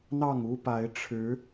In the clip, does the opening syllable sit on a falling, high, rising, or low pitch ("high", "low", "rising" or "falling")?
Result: falling